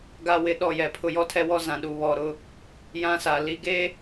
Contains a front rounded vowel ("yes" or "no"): no